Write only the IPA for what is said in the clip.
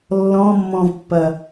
lːɔ̃mːɔ̃vpːɐ

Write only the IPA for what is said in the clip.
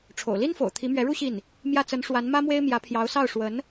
ʈ͡ʂʰo̰˨˩ʊ̯li˥nfo̰˨˩ʊ̯ t̪ʰi˧˥mɥɛ˧˥ɻu˥ ɕi˥˩n | mjä˥˩t͡sə˧˥n ʂwa˧˥nmä˥ mwe˥ɪ̯mjä˧˥pʰjɑ˧˥ʊ̯ sɑ˥˩ʊ̯ʂwə˧˥n

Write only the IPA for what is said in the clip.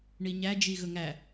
ɳiɲæd͡ʒi ɣɵŋæ

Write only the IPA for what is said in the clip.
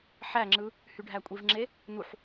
ħæŋ͡ǁɯ | hyɖʱækʷʼivŋ͡ǁe | nuħ

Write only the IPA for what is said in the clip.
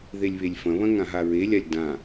ðelʲβelʲfɐ̃βɐ̃ ŋãɦaɹelʲalʲ dã

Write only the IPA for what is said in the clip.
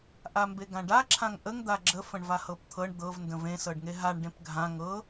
ʔambeɡãɖa ǁʰãŋʔəŋ d̪aɡ͡ǁə fə̃ɳvahɤpt̪ʰɤɳ d̪ɤv ndə̃vẽ sɤɖŋeɦaɳ ɖẽpɡʱã ŋɤ

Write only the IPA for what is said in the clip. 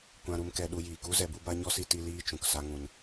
kʷã˧ɾu˧mkɛ˧ ɗu˧jiː˨ku˦ zɛ˧bu˦ba˦ ɲɔ˦si˧ ti˧ liː˦t͡ʃũ˨k sa˦ŋũ˧n

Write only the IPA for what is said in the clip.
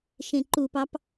ʃẽǃupɑp

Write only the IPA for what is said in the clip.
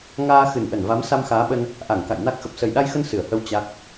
ŋaː˧ xɨ˨˩nʔə˧˩nva˨˦m sa˧mxaː˨˦ɓə˧n | ʔa˧˩ŋ ka̰˧˨jna˦˥k̚ xə˨˩p̚sə˨˩jɗa˧jxə˧n sɨ˧˩ə̯hə˧w t͡ɕa˦˥k̚

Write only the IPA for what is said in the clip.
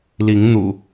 li˨˦ŋn̪ṵ˨˩

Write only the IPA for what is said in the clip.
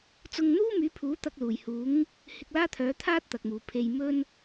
t͡sʊ˧ŋn̪uː˥myː˨˥pʰuː˨˥ t̪ɐ˧k̚luː˨˩jhuː˨˥ŋ | hɪ˧k̚laː˥t̪ʰœː˨˥t̪ʰaː˥t̚ t̪ɐ˨k̚muː˨˩pʰe˧j mɵ˥n

